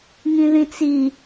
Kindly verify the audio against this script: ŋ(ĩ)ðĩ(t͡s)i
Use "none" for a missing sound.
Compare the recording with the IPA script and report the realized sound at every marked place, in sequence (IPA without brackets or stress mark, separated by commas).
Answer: ĩ, t͡s